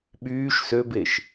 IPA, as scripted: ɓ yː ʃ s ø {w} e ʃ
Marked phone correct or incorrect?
incorrect